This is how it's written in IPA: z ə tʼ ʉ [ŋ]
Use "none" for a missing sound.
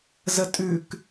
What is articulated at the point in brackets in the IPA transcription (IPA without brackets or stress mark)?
k